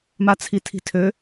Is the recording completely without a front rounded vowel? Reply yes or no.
no